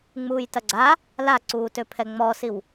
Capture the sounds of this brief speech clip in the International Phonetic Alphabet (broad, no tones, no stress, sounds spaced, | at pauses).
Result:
ŋ͡m uː j t ɐ ɡ͡ǀ a | l a ǀ uː t ø pʰ ɛ ŋ͡m ɔː s i w